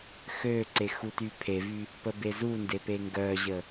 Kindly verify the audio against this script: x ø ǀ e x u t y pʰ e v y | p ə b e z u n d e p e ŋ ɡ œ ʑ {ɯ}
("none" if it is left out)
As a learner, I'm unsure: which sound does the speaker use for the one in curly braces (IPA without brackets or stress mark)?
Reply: ə